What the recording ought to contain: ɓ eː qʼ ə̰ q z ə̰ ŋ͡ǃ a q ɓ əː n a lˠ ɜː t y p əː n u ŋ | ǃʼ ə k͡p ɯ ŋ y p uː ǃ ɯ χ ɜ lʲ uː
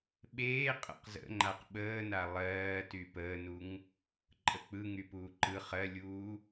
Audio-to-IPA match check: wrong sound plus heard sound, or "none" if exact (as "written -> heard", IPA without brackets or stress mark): none